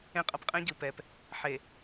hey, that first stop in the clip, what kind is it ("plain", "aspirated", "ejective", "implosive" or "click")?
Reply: ejective